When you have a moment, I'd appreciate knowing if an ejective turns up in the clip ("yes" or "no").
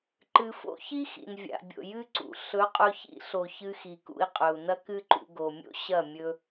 yes